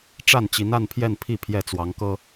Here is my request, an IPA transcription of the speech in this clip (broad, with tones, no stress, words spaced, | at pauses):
ʈ͡ʂa˥˩nt͡ɕi˧˥na˥˧n pʰjɛ˥˧npʰi˥˧ pʰjɛ˥˩t͡swɑ˧˥ŋkɤ˥